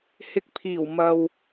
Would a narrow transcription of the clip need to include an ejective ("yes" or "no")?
no